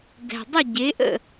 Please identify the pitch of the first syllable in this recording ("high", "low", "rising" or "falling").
low